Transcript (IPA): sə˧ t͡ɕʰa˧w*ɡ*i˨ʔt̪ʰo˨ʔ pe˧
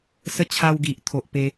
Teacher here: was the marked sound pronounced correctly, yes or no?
yes